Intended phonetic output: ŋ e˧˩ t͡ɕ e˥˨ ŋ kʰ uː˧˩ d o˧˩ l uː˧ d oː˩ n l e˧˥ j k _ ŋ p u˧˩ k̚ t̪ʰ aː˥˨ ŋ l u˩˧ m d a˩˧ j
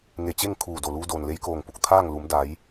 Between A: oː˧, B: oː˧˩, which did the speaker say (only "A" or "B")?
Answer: B